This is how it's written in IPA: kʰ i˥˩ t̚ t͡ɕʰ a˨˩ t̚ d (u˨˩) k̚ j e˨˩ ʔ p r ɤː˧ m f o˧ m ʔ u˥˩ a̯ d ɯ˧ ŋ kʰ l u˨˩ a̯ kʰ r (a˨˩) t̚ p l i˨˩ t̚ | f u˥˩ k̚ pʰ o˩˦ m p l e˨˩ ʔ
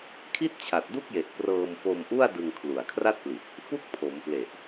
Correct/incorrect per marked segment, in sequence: incorrect: u˥˩, incorrect: a˥˩

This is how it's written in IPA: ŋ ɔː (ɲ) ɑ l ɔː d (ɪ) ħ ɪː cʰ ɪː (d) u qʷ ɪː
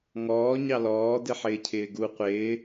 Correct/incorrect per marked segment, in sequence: correct, correct, incorrect: ɡ

